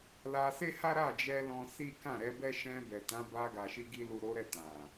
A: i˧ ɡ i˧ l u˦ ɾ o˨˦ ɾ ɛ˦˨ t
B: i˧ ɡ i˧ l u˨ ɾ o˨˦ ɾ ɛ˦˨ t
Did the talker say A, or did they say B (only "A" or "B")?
B